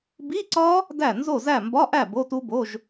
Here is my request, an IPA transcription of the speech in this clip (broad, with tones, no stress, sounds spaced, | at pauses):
b i˧˥˧ ǀ ɒ˦˥ | d æ˥˩ n z o˥˩ z æ˥˩ m b ɒ˧˥˧ ʔ æ˥˩ b o˧˥˧ t u˦˥ b o˧˥˧ ʒ